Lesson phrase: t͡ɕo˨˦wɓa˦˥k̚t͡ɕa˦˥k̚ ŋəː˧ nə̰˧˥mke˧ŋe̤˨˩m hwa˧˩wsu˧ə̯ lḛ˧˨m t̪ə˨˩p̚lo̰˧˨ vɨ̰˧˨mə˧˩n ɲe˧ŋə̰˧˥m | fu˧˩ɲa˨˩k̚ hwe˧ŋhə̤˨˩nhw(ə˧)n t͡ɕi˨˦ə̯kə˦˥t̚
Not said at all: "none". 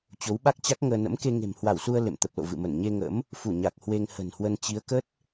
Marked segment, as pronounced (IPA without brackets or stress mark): ə˧